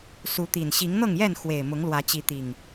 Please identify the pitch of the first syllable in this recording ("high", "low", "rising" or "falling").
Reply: rising